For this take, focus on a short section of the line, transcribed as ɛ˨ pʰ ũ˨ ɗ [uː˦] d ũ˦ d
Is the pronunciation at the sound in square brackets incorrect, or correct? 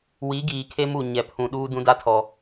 correct